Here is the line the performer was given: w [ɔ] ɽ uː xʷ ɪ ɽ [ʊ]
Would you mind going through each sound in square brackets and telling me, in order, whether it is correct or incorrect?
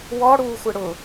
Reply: correct, correct

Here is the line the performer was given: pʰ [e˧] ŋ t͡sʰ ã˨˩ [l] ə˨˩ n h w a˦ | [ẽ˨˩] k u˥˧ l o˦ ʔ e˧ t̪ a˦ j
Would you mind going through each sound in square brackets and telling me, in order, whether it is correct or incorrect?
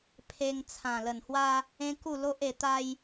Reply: correct, correct, incorrect

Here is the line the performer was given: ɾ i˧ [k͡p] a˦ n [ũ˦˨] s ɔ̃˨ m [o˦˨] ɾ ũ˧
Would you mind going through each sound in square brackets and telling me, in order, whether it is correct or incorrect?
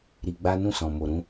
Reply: incorrect, correct, incorrect

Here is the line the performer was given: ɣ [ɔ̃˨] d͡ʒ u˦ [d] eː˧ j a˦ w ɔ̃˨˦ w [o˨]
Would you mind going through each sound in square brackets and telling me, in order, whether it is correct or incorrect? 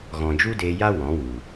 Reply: correct, correct, incorrect

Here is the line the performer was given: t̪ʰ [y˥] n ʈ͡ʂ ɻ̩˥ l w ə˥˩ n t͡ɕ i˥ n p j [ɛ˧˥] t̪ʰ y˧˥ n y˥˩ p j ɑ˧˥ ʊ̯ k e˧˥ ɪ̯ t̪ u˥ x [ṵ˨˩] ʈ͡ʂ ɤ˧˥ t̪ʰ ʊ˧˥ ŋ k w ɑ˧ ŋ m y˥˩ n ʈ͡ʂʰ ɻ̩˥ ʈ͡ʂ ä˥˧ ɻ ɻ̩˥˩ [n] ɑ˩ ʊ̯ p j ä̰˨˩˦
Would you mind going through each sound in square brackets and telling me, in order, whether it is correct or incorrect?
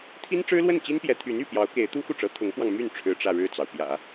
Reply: incorrect, correct, incorrect, incorrect

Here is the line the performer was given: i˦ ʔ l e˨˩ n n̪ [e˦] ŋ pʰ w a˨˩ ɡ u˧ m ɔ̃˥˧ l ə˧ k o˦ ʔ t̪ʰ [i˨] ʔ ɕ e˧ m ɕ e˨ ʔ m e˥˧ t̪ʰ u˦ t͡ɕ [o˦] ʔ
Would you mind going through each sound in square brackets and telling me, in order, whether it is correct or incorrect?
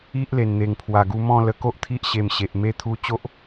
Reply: incorrect, incorrect, correct

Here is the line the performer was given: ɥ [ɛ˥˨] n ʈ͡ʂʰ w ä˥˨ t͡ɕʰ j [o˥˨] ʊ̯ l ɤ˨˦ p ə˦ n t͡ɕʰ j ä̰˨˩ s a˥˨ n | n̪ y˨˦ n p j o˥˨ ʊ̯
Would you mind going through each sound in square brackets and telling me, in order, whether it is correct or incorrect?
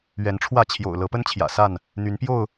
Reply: incorrect, incorrect

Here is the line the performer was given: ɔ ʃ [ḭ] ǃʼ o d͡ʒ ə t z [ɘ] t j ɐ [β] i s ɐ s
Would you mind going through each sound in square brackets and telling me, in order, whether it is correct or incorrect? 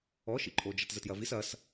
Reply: correct, correct, incorrect

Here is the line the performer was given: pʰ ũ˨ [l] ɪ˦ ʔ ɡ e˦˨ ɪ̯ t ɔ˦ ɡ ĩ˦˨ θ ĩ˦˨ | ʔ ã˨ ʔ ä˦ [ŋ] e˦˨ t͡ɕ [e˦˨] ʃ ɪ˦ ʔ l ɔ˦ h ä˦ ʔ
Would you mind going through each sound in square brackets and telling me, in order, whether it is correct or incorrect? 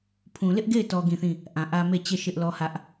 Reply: correct, incorrect, correct

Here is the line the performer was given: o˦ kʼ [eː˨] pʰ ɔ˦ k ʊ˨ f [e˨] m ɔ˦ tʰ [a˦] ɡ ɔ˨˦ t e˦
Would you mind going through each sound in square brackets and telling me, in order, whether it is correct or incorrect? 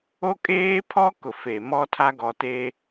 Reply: incorrect, correct, correct

